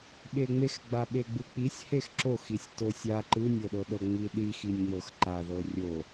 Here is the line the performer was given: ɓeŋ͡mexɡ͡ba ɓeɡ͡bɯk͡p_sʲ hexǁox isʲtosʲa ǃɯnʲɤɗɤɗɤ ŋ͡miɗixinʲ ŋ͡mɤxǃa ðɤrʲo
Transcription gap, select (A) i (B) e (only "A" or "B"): A